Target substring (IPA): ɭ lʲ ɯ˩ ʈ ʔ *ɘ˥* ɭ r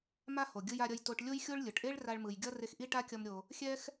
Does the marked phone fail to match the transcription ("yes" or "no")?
yes